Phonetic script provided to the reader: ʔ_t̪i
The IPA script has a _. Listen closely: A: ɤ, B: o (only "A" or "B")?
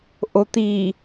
B